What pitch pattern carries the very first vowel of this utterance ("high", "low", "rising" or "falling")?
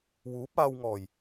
rising